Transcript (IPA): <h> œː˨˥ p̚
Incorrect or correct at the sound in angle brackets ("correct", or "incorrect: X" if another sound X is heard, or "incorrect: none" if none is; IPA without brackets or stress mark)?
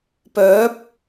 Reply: incorrect: p